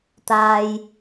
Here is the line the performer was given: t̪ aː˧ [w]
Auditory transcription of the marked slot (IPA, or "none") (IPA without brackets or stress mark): j